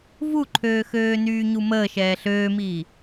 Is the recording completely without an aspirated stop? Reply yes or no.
no